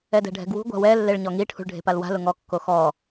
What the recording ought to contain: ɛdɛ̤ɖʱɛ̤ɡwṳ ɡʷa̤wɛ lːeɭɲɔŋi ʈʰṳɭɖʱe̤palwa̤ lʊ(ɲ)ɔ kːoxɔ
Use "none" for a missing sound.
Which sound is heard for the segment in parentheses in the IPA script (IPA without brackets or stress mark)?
ŋ